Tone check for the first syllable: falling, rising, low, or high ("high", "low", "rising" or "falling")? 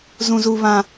high